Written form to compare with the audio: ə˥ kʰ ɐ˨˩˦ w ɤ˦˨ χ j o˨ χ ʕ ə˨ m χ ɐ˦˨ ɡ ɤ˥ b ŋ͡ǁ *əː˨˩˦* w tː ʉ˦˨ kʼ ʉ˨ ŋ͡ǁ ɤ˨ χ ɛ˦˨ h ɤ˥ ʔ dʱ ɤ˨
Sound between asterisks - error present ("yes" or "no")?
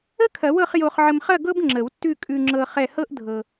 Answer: yes